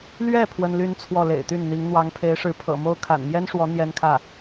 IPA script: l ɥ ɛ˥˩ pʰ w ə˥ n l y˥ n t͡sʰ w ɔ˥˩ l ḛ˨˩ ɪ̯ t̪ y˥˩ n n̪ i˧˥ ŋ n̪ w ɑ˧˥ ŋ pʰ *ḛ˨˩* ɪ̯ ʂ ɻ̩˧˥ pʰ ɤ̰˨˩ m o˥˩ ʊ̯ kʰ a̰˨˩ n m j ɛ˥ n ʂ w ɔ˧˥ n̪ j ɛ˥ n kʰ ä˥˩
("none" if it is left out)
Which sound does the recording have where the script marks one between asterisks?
e˧˥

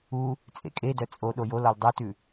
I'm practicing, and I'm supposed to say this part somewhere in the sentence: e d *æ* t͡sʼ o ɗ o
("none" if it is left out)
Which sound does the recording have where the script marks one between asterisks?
œ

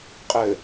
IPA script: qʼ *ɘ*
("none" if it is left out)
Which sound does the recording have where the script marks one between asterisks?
ɘ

